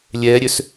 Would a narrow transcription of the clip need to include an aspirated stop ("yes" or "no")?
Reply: no